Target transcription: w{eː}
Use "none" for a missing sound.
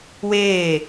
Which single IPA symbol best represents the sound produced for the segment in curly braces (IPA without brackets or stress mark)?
eː